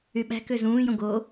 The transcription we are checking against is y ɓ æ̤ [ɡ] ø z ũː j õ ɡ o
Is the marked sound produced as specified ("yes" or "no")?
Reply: no